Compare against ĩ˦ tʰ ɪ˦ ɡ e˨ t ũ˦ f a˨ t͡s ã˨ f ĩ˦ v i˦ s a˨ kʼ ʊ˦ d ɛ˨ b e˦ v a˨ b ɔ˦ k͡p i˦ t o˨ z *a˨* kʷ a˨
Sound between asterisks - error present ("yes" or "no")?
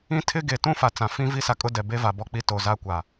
yes